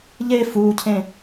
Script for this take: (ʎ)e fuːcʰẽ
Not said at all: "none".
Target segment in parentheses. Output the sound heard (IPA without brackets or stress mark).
ʎ